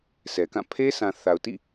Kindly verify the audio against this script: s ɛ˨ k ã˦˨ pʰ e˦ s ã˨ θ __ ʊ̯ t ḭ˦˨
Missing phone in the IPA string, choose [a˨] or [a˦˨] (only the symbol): a˨